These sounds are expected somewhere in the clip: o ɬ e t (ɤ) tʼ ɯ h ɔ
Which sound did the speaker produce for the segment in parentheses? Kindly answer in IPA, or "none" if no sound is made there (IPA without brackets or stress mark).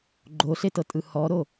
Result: ɤ